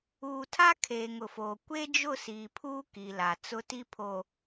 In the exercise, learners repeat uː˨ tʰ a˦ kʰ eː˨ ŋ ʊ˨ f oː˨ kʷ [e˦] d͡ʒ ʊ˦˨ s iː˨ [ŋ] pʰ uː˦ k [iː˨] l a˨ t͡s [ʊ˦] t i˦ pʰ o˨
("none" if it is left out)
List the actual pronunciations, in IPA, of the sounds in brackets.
e˦, none, i˨, ʊ˦

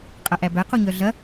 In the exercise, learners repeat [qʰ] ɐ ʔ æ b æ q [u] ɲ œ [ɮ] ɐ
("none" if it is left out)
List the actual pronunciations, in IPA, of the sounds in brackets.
qʼ, u, ɮ

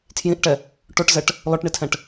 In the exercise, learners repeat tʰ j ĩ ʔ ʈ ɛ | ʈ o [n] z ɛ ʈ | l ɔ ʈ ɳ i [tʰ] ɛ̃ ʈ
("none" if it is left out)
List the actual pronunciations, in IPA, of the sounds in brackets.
ʈ, tʰ

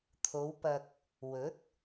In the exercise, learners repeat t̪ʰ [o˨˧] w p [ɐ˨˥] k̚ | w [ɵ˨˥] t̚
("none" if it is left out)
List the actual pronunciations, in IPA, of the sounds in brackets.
o˨˧, ɐ˧, ɵ˨˥

